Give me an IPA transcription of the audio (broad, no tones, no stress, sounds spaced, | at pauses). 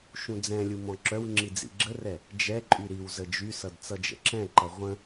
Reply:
ʃ ũ d͡z ɛ̃ lʲ u m ɔ̃ ǁ œ w ŋ͡ǁ i d͡z ḭ ɡ͡ǁ ə r ɛ | d͡ʒ ɛ ǃʼ y ɾ i w z ə d͡ʒ y s ʌ d t͡s ʌ d͡ʒ ə̰ ǁ ɛ̃ ǃ ʌ ʁʷ ə̃